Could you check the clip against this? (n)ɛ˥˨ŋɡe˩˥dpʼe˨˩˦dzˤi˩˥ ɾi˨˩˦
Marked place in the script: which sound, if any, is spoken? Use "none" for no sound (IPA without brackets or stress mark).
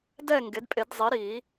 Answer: d